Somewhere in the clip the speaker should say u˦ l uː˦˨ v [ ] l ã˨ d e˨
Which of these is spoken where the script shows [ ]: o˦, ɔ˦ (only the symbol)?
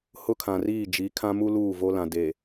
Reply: o˦